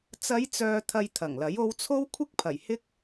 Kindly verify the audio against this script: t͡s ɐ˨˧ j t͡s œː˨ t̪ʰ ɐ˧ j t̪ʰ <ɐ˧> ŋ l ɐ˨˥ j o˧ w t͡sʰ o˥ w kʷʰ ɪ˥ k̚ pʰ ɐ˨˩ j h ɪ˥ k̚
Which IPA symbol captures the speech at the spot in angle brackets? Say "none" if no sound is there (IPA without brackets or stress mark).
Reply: ɐ˨˩